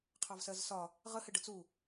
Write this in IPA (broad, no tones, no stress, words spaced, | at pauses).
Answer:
qʰɑvsɜzsɒ | ʁə hɪɖət͡su